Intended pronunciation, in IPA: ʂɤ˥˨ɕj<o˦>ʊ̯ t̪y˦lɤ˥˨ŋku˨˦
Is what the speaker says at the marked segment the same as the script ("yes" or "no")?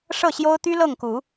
yes